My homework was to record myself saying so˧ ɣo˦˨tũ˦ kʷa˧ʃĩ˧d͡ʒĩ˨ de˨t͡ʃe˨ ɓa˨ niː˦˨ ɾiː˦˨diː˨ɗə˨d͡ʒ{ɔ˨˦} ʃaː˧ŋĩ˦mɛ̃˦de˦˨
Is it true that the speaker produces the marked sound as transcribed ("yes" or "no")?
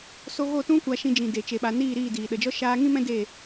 no